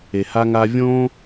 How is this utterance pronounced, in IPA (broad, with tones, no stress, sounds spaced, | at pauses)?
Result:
e˨ h a˦ ŋ aː˦ vʲ õː˦